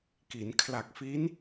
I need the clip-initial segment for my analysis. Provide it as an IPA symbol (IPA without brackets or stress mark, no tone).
k